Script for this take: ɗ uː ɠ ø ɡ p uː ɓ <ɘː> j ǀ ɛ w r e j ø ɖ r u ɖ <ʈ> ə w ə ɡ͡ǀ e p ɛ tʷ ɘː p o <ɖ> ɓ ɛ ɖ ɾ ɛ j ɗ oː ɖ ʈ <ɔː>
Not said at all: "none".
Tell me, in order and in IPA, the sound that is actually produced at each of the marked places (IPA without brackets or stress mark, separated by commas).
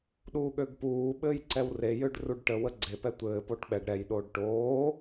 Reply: ɘː, ʈ, ʈ, oː